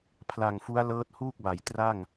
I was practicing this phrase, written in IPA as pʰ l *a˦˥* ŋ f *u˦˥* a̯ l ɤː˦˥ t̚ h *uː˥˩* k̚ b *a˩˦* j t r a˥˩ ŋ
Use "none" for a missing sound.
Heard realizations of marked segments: a˨˩, u˦˥, uː˥˩, a˩˦

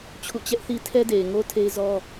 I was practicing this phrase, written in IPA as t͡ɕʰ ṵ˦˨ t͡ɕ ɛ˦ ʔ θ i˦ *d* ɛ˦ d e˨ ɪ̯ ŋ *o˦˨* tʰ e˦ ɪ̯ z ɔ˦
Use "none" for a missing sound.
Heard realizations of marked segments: tʰ, o˦

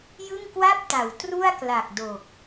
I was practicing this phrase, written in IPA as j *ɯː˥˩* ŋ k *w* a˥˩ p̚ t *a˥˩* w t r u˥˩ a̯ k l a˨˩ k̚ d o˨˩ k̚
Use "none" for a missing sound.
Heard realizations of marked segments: ɯ˥˩, w, a˩˦

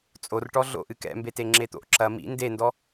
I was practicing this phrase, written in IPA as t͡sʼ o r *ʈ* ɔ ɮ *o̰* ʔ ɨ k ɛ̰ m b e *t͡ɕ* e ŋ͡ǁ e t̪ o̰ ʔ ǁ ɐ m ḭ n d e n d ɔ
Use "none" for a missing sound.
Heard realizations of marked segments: ʈ, o̰, t

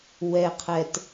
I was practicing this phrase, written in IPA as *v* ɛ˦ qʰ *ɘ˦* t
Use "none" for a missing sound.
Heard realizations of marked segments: w, ɛ˦

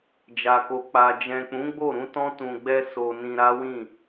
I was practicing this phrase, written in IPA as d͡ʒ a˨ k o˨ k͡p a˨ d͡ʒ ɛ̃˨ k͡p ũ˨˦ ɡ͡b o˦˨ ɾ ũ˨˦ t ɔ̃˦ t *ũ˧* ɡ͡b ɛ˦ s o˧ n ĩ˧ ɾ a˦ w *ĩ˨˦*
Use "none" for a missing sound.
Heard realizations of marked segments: ũ˧, ĩ˦˨

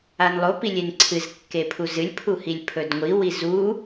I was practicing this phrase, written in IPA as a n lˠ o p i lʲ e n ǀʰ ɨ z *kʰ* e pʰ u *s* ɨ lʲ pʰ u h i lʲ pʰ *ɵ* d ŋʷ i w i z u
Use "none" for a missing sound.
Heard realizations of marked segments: kː, z, ɵ

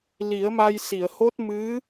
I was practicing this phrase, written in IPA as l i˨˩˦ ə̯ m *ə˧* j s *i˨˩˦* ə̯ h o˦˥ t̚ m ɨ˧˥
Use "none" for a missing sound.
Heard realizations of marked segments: a˧, i˨˩˨

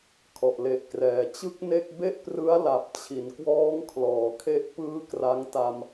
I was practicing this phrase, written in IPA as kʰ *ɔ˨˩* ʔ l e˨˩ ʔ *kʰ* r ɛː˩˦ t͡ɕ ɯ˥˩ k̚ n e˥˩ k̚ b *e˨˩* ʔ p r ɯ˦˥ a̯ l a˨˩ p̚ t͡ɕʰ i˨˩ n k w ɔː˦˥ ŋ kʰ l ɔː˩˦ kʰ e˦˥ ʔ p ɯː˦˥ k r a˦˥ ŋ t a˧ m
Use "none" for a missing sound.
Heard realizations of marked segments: ɔ˨˩, k, e˥˩

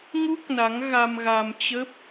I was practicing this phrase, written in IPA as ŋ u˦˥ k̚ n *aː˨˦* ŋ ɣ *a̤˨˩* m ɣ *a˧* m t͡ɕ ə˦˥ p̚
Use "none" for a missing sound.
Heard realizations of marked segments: a˨˦, a˧, a˧

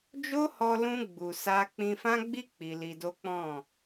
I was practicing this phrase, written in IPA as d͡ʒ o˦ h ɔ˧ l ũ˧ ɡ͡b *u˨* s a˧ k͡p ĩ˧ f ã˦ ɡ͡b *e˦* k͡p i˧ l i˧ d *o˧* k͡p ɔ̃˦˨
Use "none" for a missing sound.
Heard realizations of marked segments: u˨, i˦, o˦

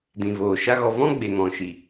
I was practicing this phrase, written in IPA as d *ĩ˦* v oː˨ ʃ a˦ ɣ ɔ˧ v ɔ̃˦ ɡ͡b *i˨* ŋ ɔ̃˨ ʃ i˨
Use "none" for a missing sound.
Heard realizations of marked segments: ĩ˨, e˨

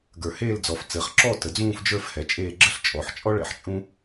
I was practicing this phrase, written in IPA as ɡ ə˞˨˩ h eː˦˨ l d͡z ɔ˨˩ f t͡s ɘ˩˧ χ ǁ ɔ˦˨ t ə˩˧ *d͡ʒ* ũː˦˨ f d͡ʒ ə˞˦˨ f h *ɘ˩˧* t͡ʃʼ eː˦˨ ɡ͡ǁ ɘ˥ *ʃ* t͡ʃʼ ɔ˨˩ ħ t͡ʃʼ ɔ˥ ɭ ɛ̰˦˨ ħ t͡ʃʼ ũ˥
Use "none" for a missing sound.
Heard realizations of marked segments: d͡z, ɛ˩˧, ɬ

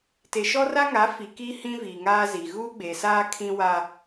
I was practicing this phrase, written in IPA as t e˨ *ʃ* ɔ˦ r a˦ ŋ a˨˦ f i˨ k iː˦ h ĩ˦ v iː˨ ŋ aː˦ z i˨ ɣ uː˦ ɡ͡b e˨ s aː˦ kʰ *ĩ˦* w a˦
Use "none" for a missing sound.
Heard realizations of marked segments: ʃ, ĩ˦

